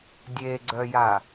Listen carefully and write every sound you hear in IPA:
dʲ e ɡ͡ǀ œ j a

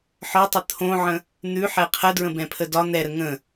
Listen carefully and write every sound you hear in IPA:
ħ ɒ tˤ ə t̪ʰ õ ʕ ə̃ | n̪ ʉ ħ ɛ qʰ ə d ɹ ə̃ b ɛ̃ pʰ ə d ɒ n̪ ɛ ɾ ə ŋ ə̃

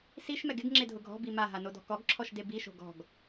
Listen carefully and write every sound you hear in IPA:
s i ʃ m ɛ ɡ ɪ ɡ ŋ͡ǁ e dʱ ʊ ɡʱ ɔ̤ b i m a ɦ a n o d ɔ̤ k ɔ ɡ ǁʰ ɔ ʃ d e b i ʃ o̤ ɡ ɔ̤ ɡ

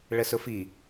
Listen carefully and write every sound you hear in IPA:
ɭ ə s ʊ f i

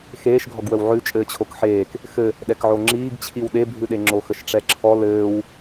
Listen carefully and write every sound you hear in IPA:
x eː ʃ ɡʱ ɔ ɡ w ə w ʕ ʉ t͡ʃʼ ɘː t͡ɕʰ o k ħ eː k | x ɘ | ɗ ɛ k ʕ o ŋ͡ǁ iː ɡ t͡ɕʰ i w ɗ e bʱ ʉ ɗ e ŋ͡ǁ o x ə ʃ ʈ͡ʂ ɛ ǁʰ ɔ l ɘː w

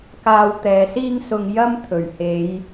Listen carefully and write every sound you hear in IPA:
k aː˧ w t̪ ɛː˨˧ s iː˥ ŋ s ʊ˧ ŋ j ɐ˥ m t̪ʰ ɵ˨˩ ɥ h e˨˧ j

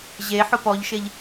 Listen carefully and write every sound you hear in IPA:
ʑ e ħ ʊ p ɔ ʎ ʃ e ʎ

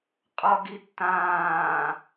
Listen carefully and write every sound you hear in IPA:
qʼ ɒ ɡ i tː ãː

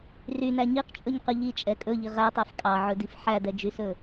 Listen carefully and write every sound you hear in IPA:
r y n æ ɲ i q t͡ʃʼ ɵ ɲ q y ʎ i t͡ʃʼ ɛ kʼ ɵ ʎ i ʁ æ tˤ æ f kʼ ɑ ʕ ɵ d i f ħ æ d ɛ d͡ʒ y s ɵ

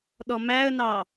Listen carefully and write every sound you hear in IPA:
ɗ ɔ m æ ə̯ n ɑ

